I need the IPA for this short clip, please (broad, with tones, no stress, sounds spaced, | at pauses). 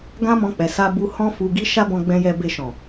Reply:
ɡ ã˦ m ɔ̃˧ k͡p ɛ˨ s a˧ b u˧ h ɔ̃˦ f u˧ ɡ i˦ ʃ a˦ b ɔ̃˧ ɡ͡b ɛ̃˧ j ɛ˧ b e˧ ʃ ɔ̃˨